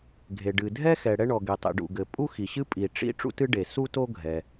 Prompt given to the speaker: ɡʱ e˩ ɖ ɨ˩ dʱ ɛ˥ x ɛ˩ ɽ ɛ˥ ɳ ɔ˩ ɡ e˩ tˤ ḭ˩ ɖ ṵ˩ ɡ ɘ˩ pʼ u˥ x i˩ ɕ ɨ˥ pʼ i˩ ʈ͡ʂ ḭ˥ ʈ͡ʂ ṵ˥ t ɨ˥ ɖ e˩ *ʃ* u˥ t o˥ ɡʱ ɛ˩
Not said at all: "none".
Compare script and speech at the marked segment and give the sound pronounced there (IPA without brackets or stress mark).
s